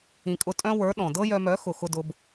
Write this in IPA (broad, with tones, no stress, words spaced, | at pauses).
ĩ˨kʼʊ˧tʼœ̃˦wə˞˨˦ ɗɔ̃˨ dɤ˦jœ˧mœ˨˦ xʊ˨xʊ˧dʊ˧b